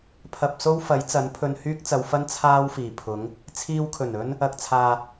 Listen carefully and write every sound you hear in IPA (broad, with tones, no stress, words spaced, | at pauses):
pʰɐ˧p̚so˥w fɐ˨˥jt͡sɐ˨˥npʰɵ˧nhyː˥k̚ t͡sɐ˨˧wfɐ˥n t͡sʰaː˥wfiː˨˩pʰʊ˨˥ŋ | t͡sʰiː˧wkʰɵ˨˩n ɵ˥n | ɐ˨k̚t͡sʰaː˨